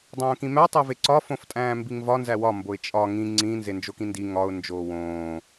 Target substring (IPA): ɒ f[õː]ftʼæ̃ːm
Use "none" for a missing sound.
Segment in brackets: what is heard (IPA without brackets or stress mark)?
õ